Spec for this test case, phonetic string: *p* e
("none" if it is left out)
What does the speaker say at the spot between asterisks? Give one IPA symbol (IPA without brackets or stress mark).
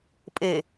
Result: pʼ